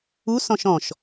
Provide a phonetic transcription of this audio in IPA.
u s ɔ̃ ʃ ɔ̃ ʃ

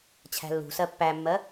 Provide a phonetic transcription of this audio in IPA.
t͡ɕʰ æ̤ lː ṳ s ɜ pː æ mː ɜ

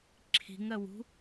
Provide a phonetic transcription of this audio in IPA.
ǁʰ i̤ ŋ ɜ w ṳ

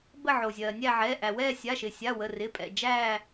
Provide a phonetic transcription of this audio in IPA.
b ə˦˨ ʕ o˩ zʲ ɜː˩ nʲ æ˦˨ ʕ ɛː˩˧˩ ʔ æ˩ w ɛː˦˨ sʲ a˩˧˩ ʃ ɪ˩ sʲ a˩˧˩ w ə˩˧˩ r ɪ˩˧˩ pʼ ɛ̰˩ d͡ʒ æː˦˨

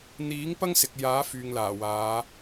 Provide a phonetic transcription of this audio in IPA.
n̪ iː˨˥ ŋ p ɐ˥ ŋ s ɪ˨ k̚ j aː˨˥ f yː˨ ŋ l aː˨˩ w aː˨˧

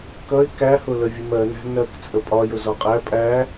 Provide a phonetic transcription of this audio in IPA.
k ʌ ɪ̯ k æ h ʊ l ə vʲ ə m ɜ n æ̤ n ɜ k t͡sʼ ə pʼ ɒ j ʊ z ɒ qʼ æ pʼ æ

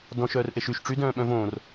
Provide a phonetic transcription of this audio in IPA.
d ɔ̃ ʃ œː r ʔ e ʃ y ʃ ʈ͡ʂ y d œ̃ː ɓ œ̃ v õː r

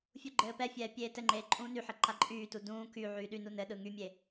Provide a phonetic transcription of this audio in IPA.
fʲ u ɡ͡ǃ ɘː p ɛ fʲ ɛː pʲ eː t ɘ ŋ͡ǃ eː ǃʼ ũː n y ħ ɘ ǃ a ǃʼ yː t u d ũː k y ʕ yː ɗ y n u n ɘ ɗ ɯ ŋ y mʲ e

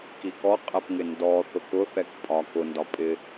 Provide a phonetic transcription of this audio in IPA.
k i k ɔ qʼ ɛ p ŋ ɪ n d ɔ θ ʊ k ʊ θ ɛ k pʼ ɒ k ʊ n d ɒ pʼ ɪ

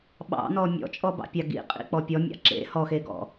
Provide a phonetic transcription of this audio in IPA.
ɓ ɑ̰ n ɔ mʲ ɔ̰ t͡ʃʼ ɔ b ɑ̰ pʲ ɑ ɡ ḭ qʼ ḭ k͡p ɔ pʲ ɔ mʲ ɑ̰ ǁ ḛ h ɔ x e ɡ ɔ̰

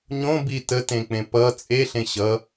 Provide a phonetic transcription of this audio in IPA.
ɲ õ b i t ə t ẽ k͡p ẽ p ʌ t͡sʼ e ɬ ẽ ɕ ʌ

